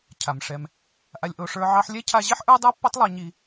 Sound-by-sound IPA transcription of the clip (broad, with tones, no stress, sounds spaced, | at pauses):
cʰ a˨ m ʂ ɛ˧ m | ʔ a˧ lʲ ʔ o˧ ʂ ə˞˧ ʕ ɑ˧ ħ lʲ ɛ˦ cʰ a˧ ʑ i˦ ħ ʔ ə˞˦ dˤ ə˞˦ pː ɛ˦ tˤ lˠ a˧ ɲ i˧